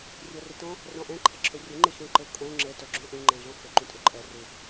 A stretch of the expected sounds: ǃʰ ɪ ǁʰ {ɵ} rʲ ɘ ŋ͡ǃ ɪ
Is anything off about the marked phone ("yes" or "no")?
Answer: no